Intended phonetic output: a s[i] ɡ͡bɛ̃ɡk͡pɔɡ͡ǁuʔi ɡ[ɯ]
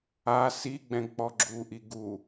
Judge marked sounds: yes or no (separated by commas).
yes, no